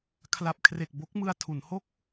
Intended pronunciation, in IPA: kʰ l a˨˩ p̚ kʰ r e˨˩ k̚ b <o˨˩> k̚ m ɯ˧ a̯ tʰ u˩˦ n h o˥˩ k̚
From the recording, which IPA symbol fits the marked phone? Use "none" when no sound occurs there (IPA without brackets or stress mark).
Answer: o˦˥